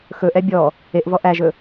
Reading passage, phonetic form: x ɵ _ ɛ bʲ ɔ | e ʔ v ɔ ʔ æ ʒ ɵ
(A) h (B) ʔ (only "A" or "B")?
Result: B